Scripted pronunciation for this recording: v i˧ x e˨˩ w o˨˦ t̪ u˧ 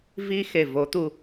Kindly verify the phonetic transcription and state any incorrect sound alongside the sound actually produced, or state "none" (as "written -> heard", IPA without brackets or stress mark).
w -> v